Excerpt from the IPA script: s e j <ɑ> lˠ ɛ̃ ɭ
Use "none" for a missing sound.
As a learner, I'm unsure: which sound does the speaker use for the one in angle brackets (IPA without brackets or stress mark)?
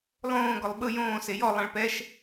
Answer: ɔ